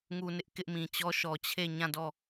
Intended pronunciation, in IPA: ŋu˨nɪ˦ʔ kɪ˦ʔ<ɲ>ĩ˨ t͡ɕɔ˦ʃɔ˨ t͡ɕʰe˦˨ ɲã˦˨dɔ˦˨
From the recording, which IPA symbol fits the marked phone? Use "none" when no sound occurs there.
m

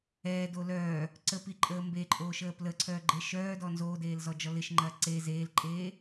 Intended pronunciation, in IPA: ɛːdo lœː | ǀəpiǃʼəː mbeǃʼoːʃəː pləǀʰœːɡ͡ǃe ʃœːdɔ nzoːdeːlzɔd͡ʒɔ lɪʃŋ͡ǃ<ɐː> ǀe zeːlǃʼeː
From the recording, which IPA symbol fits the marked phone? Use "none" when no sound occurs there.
ɐː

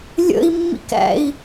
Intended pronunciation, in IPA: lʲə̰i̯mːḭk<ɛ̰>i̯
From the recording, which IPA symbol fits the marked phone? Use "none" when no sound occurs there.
æ̰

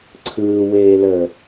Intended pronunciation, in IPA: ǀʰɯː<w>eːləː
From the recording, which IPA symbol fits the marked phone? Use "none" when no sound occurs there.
w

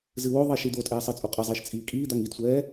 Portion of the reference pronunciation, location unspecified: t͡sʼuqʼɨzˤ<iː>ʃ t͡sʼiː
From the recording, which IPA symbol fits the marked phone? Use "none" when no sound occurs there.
iː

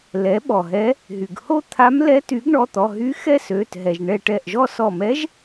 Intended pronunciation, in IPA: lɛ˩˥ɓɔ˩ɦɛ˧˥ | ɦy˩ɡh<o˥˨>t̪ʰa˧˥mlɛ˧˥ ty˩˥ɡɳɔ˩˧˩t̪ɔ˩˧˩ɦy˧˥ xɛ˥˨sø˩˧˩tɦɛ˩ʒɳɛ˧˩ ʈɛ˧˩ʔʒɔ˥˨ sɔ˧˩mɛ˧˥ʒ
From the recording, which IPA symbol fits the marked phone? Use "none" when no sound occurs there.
o˥˨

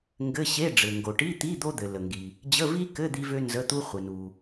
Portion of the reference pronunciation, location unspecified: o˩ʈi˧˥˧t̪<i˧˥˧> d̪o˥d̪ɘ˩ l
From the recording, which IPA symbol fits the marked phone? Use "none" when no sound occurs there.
i˧˥˧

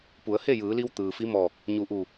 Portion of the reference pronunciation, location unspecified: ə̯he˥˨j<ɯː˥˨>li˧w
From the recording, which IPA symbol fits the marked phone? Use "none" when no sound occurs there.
ɯː˩˧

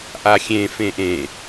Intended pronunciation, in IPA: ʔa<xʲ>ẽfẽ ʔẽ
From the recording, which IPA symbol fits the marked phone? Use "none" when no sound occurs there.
xʲ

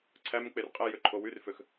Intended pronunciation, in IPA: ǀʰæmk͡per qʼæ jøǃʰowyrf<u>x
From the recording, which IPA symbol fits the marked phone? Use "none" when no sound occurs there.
ø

